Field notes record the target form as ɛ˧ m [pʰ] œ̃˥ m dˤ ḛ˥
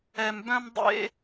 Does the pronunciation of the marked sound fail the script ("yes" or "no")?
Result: yes